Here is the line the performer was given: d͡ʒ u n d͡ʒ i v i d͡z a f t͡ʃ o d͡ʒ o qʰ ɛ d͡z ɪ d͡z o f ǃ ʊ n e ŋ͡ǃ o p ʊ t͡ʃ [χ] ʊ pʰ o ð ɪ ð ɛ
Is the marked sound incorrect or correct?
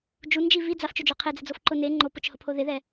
incorrect